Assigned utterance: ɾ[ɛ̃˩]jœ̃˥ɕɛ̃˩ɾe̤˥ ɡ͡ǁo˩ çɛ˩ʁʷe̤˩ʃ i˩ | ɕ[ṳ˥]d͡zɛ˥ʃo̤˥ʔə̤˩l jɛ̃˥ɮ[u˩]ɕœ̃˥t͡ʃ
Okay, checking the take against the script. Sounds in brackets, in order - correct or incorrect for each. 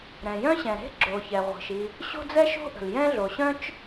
correct, incorrect, incorrect

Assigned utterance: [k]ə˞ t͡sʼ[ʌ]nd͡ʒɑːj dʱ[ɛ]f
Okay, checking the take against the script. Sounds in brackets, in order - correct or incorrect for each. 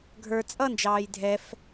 incorrect, correct, correct

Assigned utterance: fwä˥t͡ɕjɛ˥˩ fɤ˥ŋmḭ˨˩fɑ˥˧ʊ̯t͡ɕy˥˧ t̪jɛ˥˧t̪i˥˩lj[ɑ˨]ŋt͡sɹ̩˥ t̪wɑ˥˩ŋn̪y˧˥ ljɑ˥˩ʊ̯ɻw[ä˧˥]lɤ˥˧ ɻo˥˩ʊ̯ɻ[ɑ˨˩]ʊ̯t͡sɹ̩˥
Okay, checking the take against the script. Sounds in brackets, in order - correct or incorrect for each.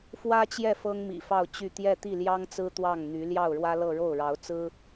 incorrect, incorrect, incorrect

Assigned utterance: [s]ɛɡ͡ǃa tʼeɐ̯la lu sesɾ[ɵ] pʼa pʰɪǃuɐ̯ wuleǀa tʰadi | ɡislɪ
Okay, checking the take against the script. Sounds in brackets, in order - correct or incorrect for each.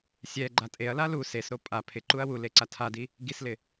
incorrect, incorrect

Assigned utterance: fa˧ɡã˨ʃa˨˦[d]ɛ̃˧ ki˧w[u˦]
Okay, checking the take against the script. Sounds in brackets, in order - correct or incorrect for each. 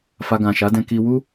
correct, correct

